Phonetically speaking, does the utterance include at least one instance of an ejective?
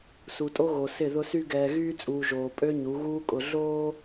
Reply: yes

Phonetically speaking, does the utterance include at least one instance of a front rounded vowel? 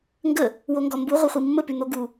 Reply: yes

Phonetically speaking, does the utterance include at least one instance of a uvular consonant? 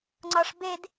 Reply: no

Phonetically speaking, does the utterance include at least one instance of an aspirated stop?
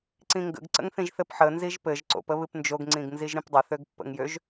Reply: no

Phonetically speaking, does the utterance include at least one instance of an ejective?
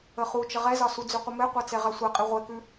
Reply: yes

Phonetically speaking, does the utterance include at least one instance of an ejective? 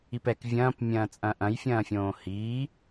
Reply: yes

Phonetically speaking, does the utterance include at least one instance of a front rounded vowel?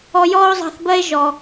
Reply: no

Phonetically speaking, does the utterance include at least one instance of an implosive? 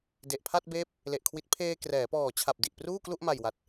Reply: no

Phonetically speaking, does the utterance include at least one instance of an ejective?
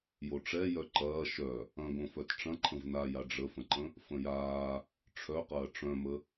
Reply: no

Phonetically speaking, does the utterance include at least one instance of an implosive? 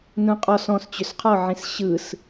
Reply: no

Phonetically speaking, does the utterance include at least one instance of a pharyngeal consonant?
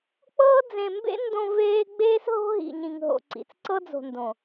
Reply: no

